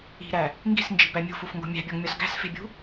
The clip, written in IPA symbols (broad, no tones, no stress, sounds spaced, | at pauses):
i̤ ɾ æ | ŋ ɡ i̤ s n d͡ʒ i̤ b æ mʲ ṳ f u f ŋ ɡ o̤ mʲ æ̤ bʲ ɒ ŋ mʲ ɒ s ɡ æ̤ s f e̤ bʲ ṳ